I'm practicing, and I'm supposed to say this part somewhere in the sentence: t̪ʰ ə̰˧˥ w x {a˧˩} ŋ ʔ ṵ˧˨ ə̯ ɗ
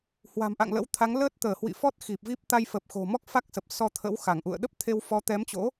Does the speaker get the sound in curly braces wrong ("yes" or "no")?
no